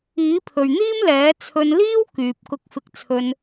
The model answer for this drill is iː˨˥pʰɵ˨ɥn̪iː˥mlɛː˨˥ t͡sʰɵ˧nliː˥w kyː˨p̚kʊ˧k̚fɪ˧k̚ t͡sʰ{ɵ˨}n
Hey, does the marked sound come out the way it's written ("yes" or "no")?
no